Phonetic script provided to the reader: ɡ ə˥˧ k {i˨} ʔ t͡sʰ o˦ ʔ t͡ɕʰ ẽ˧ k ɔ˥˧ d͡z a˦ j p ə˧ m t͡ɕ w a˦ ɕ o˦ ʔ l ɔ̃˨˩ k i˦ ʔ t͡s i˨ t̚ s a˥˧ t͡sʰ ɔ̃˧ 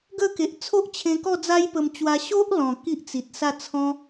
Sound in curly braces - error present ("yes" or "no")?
yes